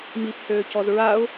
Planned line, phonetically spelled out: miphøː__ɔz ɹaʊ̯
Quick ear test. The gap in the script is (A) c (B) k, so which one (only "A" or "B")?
A